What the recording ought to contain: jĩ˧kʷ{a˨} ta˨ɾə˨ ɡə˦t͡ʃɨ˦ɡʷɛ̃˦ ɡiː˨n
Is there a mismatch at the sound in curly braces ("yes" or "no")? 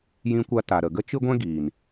yes